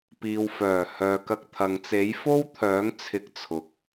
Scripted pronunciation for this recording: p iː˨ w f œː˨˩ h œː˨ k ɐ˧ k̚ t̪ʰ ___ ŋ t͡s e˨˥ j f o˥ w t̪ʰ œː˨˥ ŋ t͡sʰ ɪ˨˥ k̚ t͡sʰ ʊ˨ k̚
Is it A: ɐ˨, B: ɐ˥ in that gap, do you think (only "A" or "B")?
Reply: A